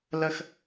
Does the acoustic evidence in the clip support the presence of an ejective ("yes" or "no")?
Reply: no